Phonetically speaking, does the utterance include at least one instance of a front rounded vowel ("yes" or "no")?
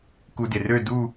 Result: yes